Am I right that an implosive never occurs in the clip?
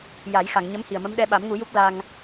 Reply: no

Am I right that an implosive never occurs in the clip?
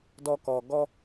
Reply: yes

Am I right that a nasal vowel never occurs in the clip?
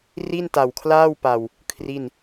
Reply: yes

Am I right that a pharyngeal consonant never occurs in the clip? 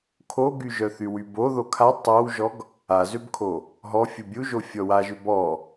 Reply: yes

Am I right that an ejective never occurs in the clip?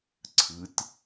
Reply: yes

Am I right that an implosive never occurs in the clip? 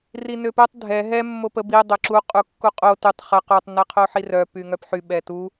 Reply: no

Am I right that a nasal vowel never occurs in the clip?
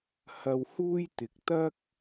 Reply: yes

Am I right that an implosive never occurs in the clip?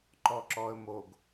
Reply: yes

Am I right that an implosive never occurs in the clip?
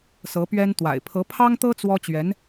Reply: yes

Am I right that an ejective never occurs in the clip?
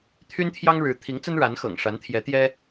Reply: yes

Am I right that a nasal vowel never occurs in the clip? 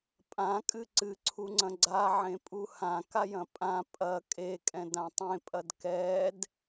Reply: no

